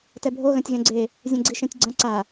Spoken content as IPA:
tɛbʱo ɣɐ̃tʲɣɛ̃ɡ͡ǀe | zʲɛ̃ɡ͡ǀiʃɛ̃tʲɡ͡ǀɐ̃ ǀa

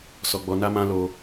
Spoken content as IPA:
sɔ˧ɡ͡bɔ˧na˦mã˦ lo˧

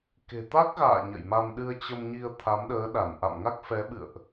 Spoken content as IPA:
ke̤˨˩t̪a˦˥k̚ɣa̰ː˧˨ ɲə̰˧˨jma˧m ɗɨ˧ə̯t͡ɕə˧mɲi˧ə̯ t̪ʰa˨˦mɗəː˨˦ɗa˧˩n ʔa̰˧˨mŋa˦˥k̚fɛ˨˦ɓɨ̰˧˨ə̯ʔ

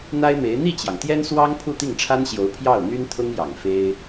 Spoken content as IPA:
n̪a˥ɪ̯me˧˥ɪ̯ n̪i˥˩t͡ɕjɑ˩ŋt̪jɛ˥nswɑ˥ŋ pʰu˥˧t̪i˥˩ŋʈ͡ʂʰa˥nɕjo˧˥ʊ̯ pʰjɑ˥˩ʊ̯n̪y˥nt̪ʰʊ˥ŋjɑ˨˩ŋ fe˥ɪ̯

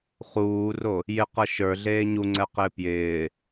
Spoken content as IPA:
χuːro | jɪqɤ ʃə˞ɮeː ɲuŋ͡ǀɛqɪː pjɪː

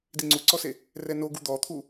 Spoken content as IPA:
diŋ͡ǀuǀɔse | rɛnoɡu d̪ɔt̪ʰu

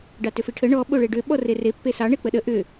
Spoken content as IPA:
ɖɑtʏfiʈʰə ɳɔ ɓoɭeɖʏ ɓɔrere pːesɑ ɳek͡pəɗə ʔʏ

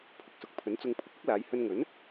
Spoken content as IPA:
pʰʊ˨k̚sʊ˨k̚pʰɵ˨˥nt͡sʊ˧ŋ pʰʊ˨˥k̚ ʊ˥k̚laː˨˧j hɵ˧nŋɵ˨˥n

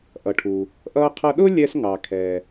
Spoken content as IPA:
ʔʌ˩ʈʰu˩ | ʔʌː˧qʰʌ˧ ɗʊ˥lʲɛ˧s ŋɑ˩kʰɛː˩

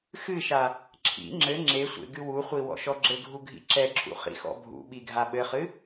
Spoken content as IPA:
xɨʃa | ǁʰḭ ŋ͡ǁɘ ŋ͡ǁesʷḛ ɡɨwuχʷi wɔ̰ʃɔɡ͡ǁɘɡʱu ɡʱḭǁɛǁʰṵ χḭxɔ̰bʱṵɓi ɡʱaɓɘχɨ

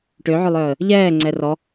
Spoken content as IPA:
ʈøʕʏlˠœːə̯ | ʎɛː ŋ͡ǀɛrɔ

